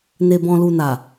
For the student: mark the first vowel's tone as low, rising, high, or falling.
low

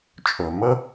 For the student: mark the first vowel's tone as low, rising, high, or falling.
low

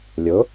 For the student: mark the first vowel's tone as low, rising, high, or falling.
rising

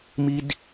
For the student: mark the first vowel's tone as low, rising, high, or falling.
high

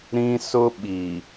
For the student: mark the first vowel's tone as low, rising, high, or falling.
high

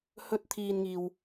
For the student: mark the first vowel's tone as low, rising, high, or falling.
high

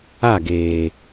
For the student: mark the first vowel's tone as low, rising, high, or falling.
falling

